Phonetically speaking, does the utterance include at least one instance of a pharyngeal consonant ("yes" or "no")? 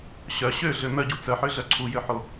yes